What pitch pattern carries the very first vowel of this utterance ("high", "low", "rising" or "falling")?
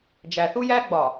low